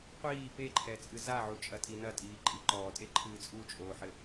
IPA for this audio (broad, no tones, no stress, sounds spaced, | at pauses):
qʷ iː p e ǃʰ ɛ t͡sʼ ɨ z a ʕ u t͡ʃʼ ɐ tʼ i n ɐ tʼ iː ǃʼ i ǃ ɔː tʼ e ǃʰ ɨː t͡sʼ u t͡ʃʼ oː ħ ɘ